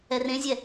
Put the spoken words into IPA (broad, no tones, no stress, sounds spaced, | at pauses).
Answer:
ɛ r ẽ zʲ ɛ